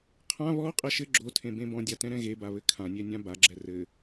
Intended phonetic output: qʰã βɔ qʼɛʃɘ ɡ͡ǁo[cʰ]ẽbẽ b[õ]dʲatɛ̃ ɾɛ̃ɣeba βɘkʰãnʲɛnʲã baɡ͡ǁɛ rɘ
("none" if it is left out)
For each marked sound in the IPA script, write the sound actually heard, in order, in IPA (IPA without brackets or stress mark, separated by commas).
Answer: tʰ, ɔ̃